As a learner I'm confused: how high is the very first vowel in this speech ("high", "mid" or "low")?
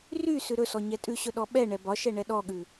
high